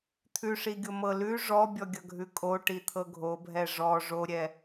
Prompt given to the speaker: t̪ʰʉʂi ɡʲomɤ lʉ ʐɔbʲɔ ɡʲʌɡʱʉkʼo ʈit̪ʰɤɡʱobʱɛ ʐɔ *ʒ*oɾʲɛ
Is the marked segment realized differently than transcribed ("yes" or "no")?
yes